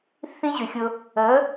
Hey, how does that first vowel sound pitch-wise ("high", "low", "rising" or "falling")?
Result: high